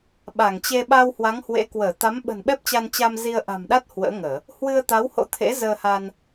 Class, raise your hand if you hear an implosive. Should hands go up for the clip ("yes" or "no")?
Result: yes